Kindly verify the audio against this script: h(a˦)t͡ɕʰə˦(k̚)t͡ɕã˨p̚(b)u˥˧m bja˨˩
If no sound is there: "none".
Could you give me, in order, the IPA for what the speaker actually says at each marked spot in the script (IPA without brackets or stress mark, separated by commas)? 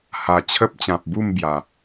a˨˩, p̚, b